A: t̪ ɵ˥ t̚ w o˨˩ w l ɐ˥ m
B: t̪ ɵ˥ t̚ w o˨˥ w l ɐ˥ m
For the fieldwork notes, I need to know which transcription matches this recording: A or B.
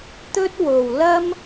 A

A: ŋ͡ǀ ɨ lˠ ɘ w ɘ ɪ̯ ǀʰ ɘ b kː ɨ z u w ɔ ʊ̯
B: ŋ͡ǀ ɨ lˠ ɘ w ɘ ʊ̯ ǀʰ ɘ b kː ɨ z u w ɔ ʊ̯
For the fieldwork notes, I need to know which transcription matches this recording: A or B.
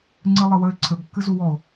A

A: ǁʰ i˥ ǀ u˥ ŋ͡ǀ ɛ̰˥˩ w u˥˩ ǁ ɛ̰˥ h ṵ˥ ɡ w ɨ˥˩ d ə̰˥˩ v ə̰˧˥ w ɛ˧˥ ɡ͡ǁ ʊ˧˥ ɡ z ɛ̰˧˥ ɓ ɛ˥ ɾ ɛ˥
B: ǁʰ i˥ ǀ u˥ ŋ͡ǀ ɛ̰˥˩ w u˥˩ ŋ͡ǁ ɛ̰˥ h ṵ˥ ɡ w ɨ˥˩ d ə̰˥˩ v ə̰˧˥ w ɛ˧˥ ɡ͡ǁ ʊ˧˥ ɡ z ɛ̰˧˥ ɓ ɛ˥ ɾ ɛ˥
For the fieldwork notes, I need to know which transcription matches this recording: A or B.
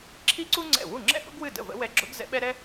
B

